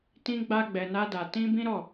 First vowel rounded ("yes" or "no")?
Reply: no